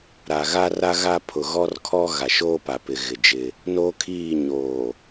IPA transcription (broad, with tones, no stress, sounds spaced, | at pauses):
ɾ a˨ ɣ a˦ r a˦ ɣ a˦ pʰ ʊ˨ ɣ ɔ˦ r kʰ ɔ˦ ɣ a˨ ʃ oː˦ p a˨ p ɪ˨ ɣ ɪ˨ d͡ʒ ɪ˦ | n oː˦ kʰ iː˦˨ ɲ oː˨